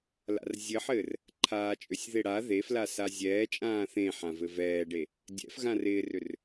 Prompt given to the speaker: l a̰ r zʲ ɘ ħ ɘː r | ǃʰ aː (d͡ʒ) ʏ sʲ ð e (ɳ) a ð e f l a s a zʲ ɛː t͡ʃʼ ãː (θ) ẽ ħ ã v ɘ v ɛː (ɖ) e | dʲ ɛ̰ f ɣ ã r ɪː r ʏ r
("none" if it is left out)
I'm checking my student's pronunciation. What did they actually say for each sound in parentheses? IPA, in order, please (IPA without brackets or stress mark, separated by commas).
t͡ʃʼ, ɽ, θ, ɖ